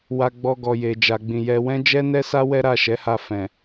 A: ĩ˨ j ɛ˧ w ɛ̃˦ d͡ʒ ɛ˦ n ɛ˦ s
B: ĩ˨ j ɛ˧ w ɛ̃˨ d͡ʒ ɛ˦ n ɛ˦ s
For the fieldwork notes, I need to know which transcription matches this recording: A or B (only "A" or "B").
A